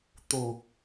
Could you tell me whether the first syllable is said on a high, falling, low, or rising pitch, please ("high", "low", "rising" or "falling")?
low